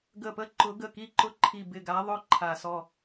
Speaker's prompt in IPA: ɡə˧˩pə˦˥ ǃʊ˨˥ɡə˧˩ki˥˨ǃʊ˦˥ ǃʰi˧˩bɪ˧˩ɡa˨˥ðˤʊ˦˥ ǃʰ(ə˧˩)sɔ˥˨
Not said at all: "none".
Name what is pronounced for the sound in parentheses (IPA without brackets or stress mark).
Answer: a˧˩